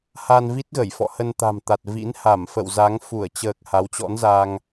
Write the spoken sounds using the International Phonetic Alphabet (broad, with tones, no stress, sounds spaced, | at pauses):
h a˧ n v i˦˥ t̚ ɣ ə˧˩ j f ɔ̰˧˨ h ə˧ n t̪ a̤˨˩ m t̪ a˨˩ t̚ v ḭ˧˥ n h a˧˩ m f ə̰˧˨ w z a˨˦ ŋ f u˧˩ ə̯ t͡ɕ əː˨˩ k̚ h a˨˦ w t͡ɕ ɔ̰˧˥ n z a˧ ŋ